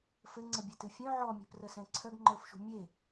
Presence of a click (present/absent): present